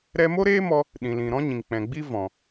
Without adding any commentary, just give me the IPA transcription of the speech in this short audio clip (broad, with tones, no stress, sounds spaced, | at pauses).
ɾ ɛ˦ m o˦ ɾ eː˦ m ɔ˧ | ɗ ĩ˨ l ĩ˨ ɾ ɔ̃˦ ɲ ĩ˨ ŋ k͡p ɛ̃˨ ɡ͡b i˦ v ɔ̃˨